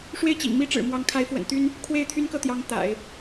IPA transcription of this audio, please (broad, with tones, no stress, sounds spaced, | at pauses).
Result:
ʂ w e˥˩ ɪ̯ t͡ɕ ḭ˨˩ ŋ m i˥ ʈ͡ʂ ɻ̩˨˩ m w ɑ˧˥ ŋ kʰ a˧˥ ɪ̯ f w ə̰˨˩ n t̪ y˥ n | kʰ w e˥˩ ɪ̯ t̪ʰ y˥ n k ɤ˥˩ t̪ j ɑ˧˥ ŋ t̪ a̰˨˩˦ ɪ̯